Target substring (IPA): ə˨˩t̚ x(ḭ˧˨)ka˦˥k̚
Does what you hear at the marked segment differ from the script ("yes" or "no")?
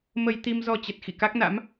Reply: no